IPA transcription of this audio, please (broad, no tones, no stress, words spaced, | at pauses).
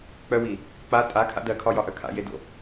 k͡pœwi | k͡pa tʼakʰa̰ dɜkʰɒjɒʔœ kʰa̰jedo̰